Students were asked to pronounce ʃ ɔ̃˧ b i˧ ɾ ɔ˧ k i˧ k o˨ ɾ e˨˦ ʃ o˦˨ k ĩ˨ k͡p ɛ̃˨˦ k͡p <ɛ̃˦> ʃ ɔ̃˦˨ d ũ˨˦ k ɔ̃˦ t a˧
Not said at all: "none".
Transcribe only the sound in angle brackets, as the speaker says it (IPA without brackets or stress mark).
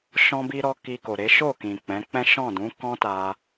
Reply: ɛ̃˦